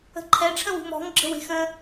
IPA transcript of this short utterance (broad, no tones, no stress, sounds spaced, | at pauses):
ə̤ ǃʰ ɛ ʈ͡ʂʰ ə̃ w ṳ m ɔ̤ ŋ ɡ͡ǁ ə̤ w e̤ x ə̃